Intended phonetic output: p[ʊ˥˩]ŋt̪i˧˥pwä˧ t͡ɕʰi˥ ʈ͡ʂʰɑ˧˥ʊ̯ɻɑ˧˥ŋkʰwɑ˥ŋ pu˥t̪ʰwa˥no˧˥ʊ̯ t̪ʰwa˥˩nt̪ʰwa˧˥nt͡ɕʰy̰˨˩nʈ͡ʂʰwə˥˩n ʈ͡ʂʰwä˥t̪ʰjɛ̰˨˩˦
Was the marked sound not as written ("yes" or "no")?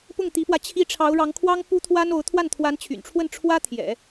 no